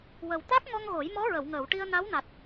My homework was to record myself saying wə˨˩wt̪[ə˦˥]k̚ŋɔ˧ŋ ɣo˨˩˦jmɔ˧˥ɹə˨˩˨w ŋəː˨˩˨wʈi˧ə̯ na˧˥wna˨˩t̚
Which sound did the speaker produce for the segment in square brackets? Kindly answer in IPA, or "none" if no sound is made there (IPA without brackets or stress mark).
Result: a˦˥